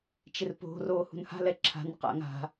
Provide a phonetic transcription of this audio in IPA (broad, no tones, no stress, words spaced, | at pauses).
t͡ʃɪrpo̤ roːhṳnha̤ lɛǁʰa̤n qa̰ŋa̤